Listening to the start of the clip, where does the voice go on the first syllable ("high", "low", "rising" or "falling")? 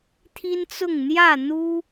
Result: high